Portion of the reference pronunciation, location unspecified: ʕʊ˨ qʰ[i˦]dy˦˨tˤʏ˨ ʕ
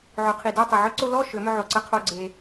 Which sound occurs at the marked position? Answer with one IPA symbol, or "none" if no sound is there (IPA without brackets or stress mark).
i˨